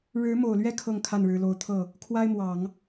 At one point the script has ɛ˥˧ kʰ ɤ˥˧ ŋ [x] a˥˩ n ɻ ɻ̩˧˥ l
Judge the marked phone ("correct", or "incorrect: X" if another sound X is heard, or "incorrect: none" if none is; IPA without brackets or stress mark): incorrect: kʰ